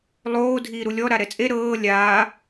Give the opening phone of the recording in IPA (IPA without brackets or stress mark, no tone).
lˠ